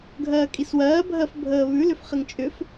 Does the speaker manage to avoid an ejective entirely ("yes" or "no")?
no